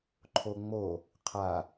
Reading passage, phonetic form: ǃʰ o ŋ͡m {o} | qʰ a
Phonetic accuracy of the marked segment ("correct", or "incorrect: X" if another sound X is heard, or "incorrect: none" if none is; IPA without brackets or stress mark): correct